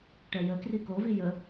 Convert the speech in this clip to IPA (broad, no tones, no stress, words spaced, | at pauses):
ʈɛjəkri kovi jə